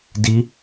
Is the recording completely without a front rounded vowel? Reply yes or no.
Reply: yes